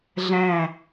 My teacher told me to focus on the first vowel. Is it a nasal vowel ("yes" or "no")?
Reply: yes